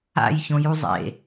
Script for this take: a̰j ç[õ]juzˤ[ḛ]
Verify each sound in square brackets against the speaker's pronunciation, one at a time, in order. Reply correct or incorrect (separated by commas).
correct, correct